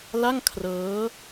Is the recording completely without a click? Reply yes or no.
yes